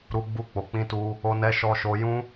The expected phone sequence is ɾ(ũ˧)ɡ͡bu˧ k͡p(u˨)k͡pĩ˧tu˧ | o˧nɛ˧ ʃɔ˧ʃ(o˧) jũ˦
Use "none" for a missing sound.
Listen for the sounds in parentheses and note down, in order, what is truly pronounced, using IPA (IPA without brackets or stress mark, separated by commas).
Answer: u˧, o˨, o˧